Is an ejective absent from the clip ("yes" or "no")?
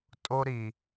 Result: no